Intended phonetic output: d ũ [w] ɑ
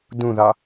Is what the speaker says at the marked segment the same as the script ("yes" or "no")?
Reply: no